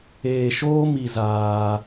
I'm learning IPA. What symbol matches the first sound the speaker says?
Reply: eː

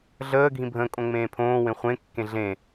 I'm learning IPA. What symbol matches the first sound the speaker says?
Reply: ɮ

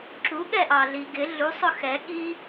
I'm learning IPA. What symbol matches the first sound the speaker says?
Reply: ǁ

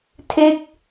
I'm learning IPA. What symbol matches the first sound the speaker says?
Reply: tʰ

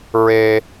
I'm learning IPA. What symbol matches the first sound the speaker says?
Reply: ɹ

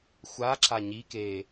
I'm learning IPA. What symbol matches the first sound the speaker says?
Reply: xʷ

